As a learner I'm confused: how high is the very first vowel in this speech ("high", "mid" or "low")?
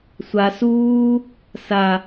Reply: low